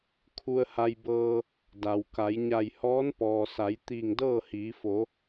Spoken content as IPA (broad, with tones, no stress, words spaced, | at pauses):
kʰu˧ə̯ha˧jbɤː˧ | da˩wka˩˧j ɲa˧˩jhɔː˧˥npɔː˩sa˩˧j t̪iː˧˩ŋdɤː˥˨hiː˩˧fo˩˧